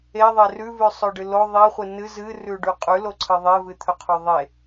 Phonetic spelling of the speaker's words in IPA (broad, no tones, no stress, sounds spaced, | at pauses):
e ðˤ e r ʉ v ʉ sˤ ɵ ɖ ɨ l o ðˤ i χʷ ɨ n ɨ z ɨ r ʉ ɖ ʉ qʼ ʉ l o ǀʰ ɨ ðˤ e v ɨ t̪ʰ ɵ qʰ o ðˤ e